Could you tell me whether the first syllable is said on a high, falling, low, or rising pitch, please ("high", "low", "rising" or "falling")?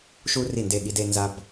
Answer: high